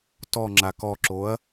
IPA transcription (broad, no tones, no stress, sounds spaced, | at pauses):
t ɔ ŋ͡ǁ a k ɔ ǁ o ɐ̯